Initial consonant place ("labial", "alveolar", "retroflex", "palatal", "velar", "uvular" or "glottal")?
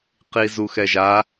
uvular